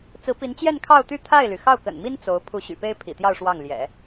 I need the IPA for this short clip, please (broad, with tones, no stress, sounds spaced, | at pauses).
t͡s ɹ̩˧˥ p i˧˥ n t͡ɕ j ɛ˥˧ n kʰ ɑ˥˧ ʊ̯ t̪ y˥˧ t̪ʰ a˥˩ ɪ̯ l y˩ x ɑ˥˩ ʊ̯ k ə̰˨˩ n m i˥ n t͡s o˧˥ ʊ̯ pʰ u˧˥ ɕ y̰˨˩ p e˥ ɪ̯ pʰ ḭ˨˩ t̪ j ɑ˥˧ ʊ̯ ʂ w ɑ˥˩ ŋ l j ɛ̰˨˩˦